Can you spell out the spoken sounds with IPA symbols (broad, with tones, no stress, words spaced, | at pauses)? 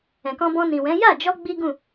ɛ̃˨kɔ̃˧ bɔ̃˧nĩ˨wɛ̃˨˦ ja˦˨d͡ʒɔ˧ ɡ͡bi˦ɡũ˦˨